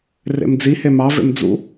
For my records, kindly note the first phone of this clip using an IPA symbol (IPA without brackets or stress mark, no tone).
r